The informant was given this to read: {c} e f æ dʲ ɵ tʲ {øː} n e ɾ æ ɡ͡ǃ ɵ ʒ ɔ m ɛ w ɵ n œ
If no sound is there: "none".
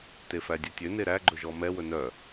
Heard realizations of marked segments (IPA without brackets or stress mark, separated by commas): t, ø